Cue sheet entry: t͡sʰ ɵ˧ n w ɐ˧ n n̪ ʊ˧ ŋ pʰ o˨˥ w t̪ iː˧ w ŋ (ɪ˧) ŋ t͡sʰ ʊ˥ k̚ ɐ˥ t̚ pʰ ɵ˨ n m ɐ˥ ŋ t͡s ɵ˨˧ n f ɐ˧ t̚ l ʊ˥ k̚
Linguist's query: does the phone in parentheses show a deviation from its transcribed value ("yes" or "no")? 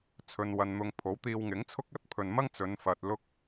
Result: yes